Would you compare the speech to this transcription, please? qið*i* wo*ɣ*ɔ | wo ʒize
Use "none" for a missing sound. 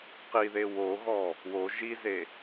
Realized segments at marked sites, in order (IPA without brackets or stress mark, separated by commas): e, ɣ